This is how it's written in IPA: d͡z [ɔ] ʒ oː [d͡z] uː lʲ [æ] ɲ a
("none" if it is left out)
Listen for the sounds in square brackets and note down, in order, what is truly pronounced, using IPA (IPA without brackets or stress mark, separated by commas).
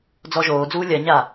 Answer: ɔ, d͡z, ɜ